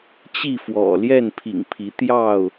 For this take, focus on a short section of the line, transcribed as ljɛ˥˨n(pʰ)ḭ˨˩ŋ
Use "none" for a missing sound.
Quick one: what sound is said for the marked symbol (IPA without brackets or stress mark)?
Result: pʰ